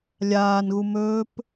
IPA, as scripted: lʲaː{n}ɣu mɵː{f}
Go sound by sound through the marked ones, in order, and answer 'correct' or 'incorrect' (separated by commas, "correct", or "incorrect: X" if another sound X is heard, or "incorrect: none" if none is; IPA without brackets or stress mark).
correct, incorrect: p